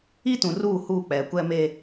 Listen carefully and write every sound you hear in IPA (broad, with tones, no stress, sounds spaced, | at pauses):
i˦ t ũ˨ r uː˦˨ h uː˦˨ k͡p ɛ˨ kʷ ɛ˦ m eː˦